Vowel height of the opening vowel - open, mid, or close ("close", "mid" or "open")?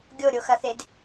mid